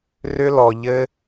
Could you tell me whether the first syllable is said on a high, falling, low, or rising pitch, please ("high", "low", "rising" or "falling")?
high